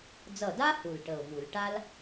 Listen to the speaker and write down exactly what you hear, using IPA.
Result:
d͡z ʌ˧˩ d a˥ h u˧˩ l ʈ ə˧˩ ʊ̯ v u˧˩˧ l ʈ a˥ l

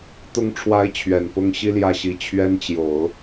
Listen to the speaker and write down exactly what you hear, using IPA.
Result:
t̪ ʊ˧˥ ŋ ʈ͡ʂʰ w a˧˥ ɪ̯ t͡ɕʰ ɥ ɛ˨˩ n p ʊ˥ ŋ ɕ i˥ l j ä˥˩ ɕ i˧˥ t͡ɕʰ ɥ ɛ˥ n t͡ɕ j o˨˩˦ ʊ̯

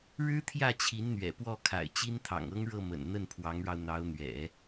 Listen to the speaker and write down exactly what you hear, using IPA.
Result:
ɻ ɻ̩˥ t̪ʰ j ä˥˩ t͡ɕʰ i˧˥ n n̪ ɥ ɛ̰˨˩ p w ɔ˥˩ kʰ a̰˨˩ ɪ̯ t͡ɕ i˥ n t̪ʰ ɑ̰˨˩ ŋ ɤ˥ ŋ ɻ ɤ˥˩ m ə̰˨˩ n n̪ ə˥˩ n pʰ w ɑ˧˥ ŋ ɻ ɑ˧ ʊ̯ n̪ ɑ˧˥ ʊ̯ n̪ ɥ ɛ̰˨˩˦

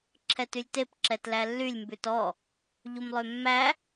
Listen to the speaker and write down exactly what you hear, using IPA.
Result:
ǁʰ ɛ t y lʲ t e p ǁ ɛ t l æ lː y lʲ m b ʉ t ɔ | ʎ u m lˠ ø mː æ

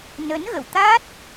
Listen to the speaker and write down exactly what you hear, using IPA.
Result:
n ə˨˦ n ɣ ə̰˧˨ w t̪ a˦˥ t̚

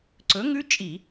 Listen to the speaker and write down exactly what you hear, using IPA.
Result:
ǀ ɵ˨˥ ŋ ʉ˦˥ t͡ʃʼ i˧˩˧

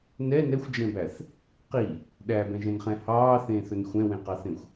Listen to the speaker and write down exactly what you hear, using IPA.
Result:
n ɛ n ɛ xʷ d͡ʒ ɛ̃ b æ θ | q i | ɗ æ b ɛ̃ ʒ ɛ̃ n χ ɛ̃ h ɑː θ ẽː θ ɵ n xʷ ɛ̃ w ẽ q ɑ θ ẽ xʷ

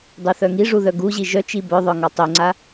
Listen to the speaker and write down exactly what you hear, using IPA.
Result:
dˤ y θ œ ŋ i ʐ u ð œ ɡ u ʑ i ʒ œ t͡ʃ i b œ ðˤ œ ŋ ɔ tˤ y ŋ͡ǀ a

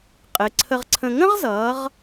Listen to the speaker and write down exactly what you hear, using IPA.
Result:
qʼ ɪ˩˧ ǀʰ ə˧ ʁ ǀʰ ə̃˧ ŋ ə̃˥ ʁ z ʌː˩˧ ʁ

